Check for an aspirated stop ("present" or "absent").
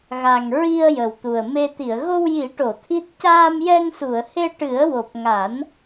present